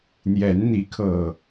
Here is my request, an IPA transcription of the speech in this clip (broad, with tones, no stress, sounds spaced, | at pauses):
n̪ j ɛ˨˦ n n̪ i˨˦ kʰ ɤ˨˩